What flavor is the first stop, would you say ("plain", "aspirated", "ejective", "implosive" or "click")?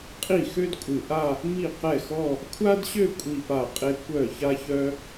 ejective